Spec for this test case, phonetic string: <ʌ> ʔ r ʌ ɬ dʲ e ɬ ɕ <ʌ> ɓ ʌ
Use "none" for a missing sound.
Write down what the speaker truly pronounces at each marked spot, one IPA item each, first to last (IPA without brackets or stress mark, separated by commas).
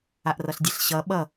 a, ʌ